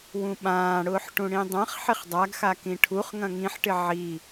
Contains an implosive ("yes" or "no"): yes